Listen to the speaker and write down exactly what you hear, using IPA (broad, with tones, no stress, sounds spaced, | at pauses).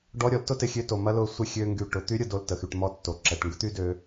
ɖ ɔ˦ ɾʲ ɔ˧ l t ʊ˦ t ɪ˧ xʲ ø˧ t o˨ m ɐ˦ l ʊ˦˨ sʷ ɪ˦ xʲ ø˧ ŋ ɡ y˨ ʈ ʊ˨ t̪ y˦ ɾʲ ʊ˧ d o˧ l t ə˨ x y˨ ʈ m ɔ˧ tː o˨ ǁ ɛ˨ ʈ ŋ ɡ ʏ˧ t̪ y˦ d ø˧